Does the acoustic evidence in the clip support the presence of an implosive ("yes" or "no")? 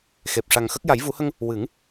no